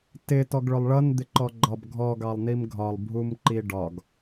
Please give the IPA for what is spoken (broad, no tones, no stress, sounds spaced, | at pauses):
t ɪ t ɔ ɡ ɭ ʊ lˠ ɭ ʌ n d̪ ɪ ǃ ɔ ɡ͡ǃ ɒ b ɡʱ ɔ ɡ ɑ lˠ n i m ɡʱ ɒ lˠ bʱ u m ǃ i ɖ ɒ ɡ